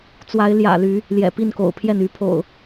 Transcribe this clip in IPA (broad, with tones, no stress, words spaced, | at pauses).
t͡swa˨˦ɪ̯ljä̰˨˩ly˨˦ | ljɛ̰˨˩pi˥˨nko̰˨˩ʊ̯pʰjɛ˥˨n y˨˦pʰo̰˨˩ʊ̯